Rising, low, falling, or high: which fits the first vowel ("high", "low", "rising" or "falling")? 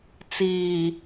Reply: low